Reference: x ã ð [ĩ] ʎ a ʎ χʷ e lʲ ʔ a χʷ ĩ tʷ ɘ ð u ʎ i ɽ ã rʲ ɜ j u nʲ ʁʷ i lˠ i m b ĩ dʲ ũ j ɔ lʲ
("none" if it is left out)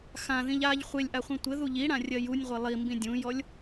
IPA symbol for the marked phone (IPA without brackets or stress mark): ĩ